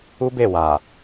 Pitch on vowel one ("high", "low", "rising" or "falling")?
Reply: high